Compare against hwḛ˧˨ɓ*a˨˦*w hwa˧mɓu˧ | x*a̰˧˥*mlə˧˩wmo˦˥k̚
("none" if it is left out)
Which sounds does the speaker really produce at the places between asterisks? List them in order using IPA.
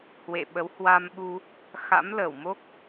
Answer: ə˨˦, a̰˧˥

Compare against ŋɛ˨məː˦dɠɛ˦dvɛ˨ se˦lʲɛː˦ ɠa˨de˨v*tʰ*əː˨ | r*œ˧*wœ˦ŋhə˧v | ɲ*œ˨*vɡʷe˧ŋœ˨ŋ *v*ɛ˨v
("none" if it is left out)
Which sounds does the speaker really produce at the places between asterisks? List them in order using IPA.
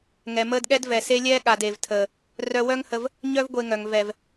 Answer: tʰ, œ˧, œ˦, v

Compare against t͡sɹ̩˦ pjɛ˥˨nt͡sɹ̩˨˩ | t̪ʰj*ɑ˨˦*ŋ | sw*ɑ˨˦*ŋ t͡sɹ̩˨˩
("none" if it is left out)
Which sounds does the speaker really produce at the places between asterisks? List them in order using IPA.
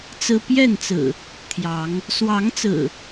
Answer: ɑ˨˦, ɑ˨˦

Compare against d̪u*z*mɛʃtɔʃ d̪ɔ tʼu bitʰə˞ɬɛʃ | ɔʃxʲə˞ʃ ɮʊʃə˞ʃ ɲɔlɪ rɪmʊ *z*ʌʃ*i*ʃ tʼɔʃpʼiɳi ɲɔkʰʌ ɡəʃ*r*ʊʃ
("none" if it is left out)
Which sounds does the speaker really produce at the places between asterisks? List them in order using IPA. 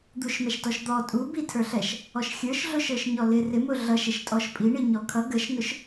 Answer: ʃ, ɮ, ɪ, n

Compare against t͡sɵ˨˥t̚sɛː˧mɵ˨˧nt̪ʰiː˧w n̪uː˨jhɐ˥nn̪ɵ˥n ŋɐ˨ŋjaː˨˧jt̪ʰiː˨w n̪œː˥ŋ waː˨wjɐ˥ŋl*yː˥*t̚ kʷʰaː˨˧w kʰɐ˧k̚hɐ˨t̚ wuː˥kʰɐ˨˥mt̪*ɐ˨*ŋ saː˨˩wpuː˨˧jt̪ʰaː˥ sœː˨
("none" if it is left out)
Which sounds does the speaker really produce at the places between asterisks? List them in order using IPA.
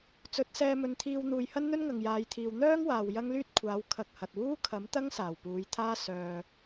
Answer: yː˥, ɐ˥

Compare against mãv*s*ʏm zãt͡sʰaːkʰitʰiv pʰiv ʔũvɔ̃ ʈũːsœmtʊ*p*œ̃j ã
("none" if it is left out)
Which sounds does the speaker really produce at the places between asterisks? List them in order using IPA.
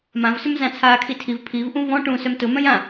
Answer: s, m

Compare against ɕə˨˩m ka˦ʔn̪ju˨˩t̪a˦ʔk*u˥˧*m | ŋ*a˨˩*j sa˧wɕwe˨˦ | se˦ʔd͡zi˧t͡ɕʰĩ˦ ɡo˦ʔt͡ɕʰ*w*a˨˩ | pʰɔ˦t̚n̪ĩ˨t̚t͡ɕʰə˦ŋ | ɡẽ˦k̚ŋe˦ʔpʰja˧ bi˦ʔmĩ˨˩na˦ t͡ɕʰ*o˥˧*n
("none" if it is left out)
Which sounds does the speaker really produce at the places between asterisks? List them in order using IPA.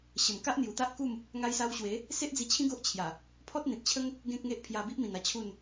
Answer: u˥˧, a˦, j, u˥˧

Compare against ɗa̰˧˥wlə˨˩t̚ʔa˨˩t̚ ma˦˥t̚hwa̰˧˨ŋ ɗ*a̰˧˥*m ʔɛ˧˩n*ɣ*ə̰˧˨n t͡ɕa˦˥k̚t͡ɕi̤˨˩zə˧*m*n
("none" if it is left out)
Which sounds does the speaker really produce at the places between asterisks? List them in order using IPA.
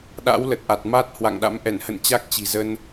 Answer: a̰˧˥, h, none

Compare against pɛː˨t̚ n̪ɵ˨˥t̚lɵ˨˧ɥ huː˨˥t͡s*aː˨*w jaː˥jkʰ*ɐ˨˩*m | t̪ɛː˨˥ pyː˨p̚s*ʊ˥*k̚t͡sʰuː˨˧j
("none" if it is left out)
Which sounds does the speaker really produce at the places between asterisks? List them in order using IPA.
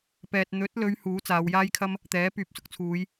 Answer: aː˨˧, ɐ˥, ʊ˥

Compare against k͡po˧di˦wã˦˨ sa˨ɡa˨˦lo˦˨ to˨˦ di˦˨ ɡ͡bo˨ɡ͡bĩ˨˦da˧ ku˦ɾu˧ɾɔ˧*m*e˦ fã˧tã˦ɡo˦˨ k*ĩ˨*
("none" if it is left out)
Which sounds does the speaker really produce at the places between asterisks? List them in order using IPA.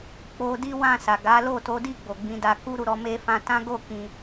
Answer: m, ĩ˨

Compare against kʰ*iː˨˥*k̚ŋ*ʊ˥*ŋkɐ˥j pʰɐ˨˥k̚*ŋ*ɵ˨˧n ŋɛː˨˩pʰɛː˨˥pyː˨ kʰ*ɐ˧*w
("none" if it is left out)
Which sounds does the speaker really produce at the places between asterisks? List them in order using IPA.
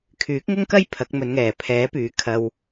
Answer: yː˨˥, ʊ˥, m, ɐ˧

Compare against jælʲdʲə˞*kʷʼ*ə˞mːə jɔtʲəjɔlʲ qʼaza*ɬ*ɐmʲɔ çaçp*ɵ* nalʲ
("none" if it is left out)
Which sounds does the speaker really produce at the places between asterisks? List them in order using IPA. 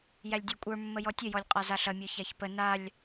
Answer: kʷʼ, ɬ, ə

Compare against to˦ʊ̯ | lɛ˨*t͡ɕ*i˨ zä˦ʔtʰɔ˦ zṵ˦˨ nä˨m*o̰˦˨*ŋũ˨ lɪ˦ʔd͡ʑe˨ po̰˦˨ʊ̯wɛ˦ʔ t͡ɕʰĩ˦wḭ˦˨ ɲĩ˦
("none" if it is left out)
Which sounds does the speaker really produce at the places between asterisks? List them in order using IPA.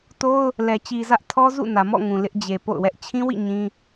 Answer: t͡ɕ, ɔ̰˦˨

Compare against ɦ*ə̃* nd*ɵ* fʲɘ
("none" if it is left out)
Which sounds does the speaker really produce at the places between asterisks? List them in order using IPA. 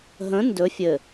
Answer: ə̃, ɵ

